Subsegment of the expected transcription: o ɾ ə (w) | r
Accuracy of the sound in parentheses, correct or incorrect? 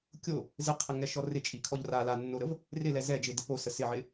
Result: incorrect